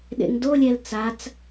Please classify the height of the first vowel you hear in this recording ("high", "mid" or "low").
mid